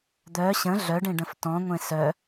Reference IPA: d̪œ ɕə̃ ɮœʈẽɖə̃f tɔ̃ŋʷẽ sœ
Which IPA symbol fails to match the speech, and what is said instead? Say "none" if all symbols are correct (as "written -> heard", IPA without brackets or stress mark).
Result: ʈ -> ɖ